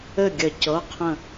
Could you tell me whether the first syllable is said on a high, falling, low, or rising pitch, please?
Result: falling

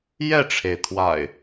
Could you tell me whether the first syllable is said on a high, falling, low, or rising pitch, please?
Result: falling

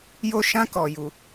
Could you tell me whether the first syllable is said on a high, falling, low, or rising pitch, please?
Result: falling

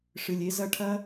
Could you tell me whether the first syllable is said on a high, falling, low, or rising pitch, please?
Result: low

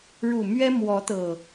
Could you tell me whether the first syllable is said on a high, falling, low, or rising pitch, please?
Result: low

